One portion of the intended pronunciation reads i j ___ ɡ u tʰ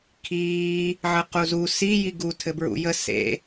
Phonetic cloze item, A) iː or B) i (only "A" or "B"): B